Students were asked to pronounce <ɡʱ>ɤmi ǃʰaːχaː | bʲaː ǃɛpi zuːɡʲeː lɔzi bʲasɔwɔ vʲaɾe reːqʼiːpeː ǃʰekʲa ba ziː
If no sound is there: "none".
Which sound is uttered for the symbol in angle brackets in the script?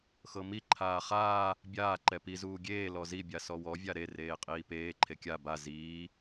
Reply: x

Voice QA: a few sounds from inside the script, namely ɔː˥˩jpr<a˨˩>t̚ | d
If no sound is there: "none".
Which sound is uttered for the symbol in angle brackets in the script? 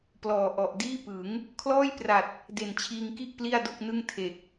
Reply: a˨˩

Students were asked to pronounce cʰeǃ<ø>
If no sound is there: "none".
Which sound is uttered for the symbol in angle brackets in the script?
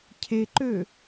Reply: ø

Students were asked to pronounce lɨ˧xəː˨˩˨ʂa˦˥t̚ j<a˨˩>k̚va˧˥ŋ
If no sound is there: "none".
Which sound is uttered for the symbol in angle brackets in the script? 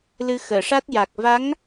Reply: a˨˩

